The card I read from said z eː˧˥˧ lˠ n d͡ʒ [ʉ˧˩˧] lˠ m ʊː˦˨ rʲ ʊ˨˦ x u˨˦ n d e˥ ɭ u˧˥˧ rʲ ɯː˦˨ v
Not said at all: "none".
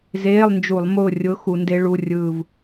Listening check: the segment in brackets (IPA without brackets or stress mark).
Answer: u˧˩˧